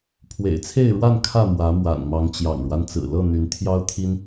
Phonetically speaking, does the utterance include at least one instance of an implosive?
no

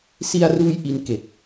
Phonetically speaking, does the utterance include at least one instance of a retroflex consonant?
no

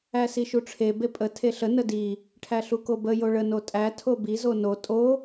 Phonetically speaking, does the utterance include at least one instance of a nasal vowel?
no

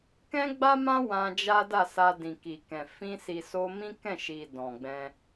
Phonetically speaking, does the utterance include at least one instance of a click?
no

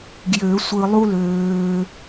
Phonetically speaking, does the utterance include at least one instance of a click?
no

